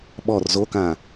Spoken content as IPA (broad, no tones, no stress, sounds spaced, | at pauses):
ɓ ɔ r z o k ã